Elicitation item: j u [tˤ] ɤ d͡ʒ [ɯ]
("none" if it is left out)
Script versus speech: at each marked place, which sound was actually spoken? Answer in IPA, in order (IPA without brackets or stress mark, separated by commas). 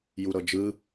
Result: ɾ, ɯ